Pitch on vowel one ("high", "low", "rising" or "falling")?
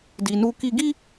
low